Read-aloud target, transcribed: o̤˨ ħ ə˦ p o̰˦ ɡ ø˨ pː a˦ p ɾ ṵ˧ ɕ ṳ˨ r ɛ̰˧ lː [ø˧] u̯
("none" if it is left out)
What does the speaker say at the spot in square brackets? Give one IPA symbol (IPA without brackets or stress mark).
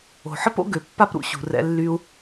y˧